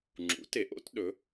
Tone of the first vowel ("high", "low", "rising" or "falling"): rising